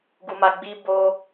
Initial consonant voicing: voiced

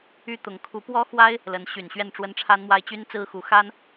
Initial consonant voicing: voiceless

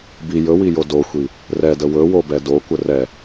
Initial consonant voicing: voiced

